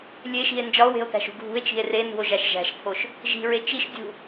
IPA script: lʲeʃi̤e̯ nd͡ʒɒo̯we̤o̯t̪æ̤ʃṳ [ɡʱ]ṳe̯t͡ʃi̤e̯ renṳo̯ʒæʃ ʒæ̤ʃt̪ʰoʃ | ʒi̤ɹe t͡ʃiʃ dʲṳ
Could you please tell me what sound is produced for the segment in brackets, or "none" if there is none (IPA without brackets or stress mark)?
ɡʱ